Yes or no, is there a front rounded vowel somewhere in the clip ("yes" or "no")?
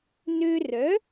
yes